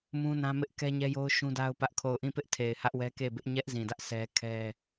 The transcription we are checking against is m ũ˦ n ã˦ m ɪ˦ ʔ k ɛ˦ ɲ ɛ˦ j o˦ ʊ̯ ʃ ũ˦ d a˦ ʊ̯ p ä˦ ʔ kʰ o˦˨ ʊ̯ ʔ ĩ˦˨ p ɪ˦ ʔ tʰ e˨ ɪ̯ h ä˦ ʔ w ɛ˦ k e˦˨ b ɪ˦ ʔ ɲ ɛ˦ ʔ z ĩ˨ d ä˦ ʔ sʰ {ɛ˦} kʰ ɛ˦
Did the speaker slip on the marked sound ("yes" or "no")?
no